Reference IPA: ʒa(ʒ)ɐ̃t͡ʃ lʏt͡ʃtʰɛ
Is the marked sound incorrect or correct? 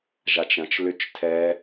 incorrect